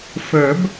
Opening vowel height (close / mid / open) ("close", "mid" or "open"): mid